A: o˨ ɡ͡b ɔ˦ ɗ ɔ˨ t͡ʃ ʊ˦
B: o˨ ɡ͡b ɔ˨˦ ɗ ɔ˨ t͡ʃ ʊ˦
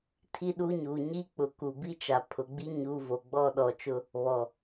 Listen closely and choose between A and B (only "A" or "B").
A